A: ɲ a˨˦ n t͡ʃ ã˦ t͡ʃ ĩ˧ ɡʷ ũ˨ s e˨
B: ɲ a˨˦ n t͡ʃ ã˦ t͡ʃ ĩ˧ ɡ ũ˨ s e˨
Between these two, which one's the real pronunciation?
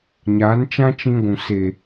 A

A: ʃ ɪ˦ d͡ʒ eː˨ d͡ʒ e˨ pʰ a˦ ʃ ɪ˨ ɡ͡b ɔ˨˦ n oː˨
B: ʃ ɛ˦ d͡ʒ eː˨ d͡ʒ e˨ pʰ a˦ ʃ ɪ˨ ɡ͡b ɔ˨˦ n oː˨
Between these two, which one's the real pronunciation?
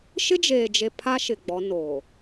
A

